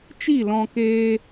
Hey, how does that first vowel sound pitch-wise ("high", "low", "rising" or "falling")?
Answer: falling